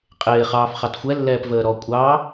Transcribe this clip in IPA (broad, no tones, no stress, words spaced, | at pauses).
qʼɪː χɑːfχɑtxʷɛ lːɛːpvəːɾɔ kʷʼɑ